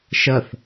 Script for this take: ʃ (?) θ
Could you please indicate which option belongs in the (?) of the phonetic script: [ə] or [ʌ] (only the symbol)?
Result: ʌ